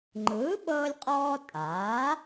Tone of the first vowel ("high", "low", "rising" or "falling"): rising